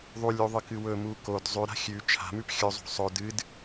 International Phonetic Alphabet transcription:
ðˤulʲuðˤɨkɨ wɵmu kod zˤʉɾa̤ xʲʉ t͡ʃʰa̤mʉp xʲɵzˤo̤ sˤɵ dɨd

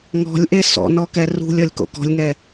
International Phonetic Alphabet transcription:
ŋɔ̤lʲʔe sɔ̰nɔkɛ rṳlʲ ɔlʲko̰kɔ̤lʲŋɛ

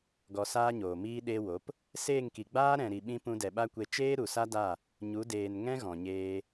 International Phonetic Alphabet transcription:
ɡɔ˧saː˦ɲoː˨ miː˧ ɗe˧wo˨˦p | seː˦˨ŋki˨ɡ͡baː˦ ɾɛ̃˨ɾi˨ɓĩ˧ pũ˧dɛ˨ɓa˦kʷe˧ t͡ʃeː˦ɾu˨sa˦da˦˨ | ɲu˨˦ deː˨n ŋɛ̃˦ɣɔ̃˨ɲeː˧

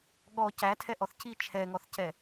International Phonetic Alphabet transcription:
ɠɔ cætʰɛʔɔθ ci t͡ʃʰɛŋɔθcɛ

